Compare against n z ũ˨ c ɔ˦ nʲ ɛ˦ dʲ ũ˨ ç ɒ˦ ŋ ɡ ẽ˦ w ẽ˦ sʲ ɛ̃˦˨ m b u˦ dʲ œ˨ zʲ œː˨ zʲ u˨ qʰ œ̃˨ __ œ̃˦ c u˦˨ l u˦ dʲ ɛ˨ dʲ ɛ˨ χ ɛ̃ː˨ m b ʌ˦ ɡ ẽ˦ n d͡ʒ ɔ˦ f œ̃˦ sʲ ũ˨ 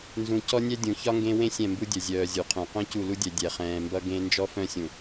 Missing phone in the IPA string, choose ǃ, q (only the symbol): q